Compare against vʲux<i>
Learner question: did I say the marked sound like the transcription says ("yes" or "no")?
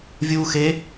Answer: no